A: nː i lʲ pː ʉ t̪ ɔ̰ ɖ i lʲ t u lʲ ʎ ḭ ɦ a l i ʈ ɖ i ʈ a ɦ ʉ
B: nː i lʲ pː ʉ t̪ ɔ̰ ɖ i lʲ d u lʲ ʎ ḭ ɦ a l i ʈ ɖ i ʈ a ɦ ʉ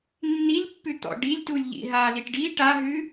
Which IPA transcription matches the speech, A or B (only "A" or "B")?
A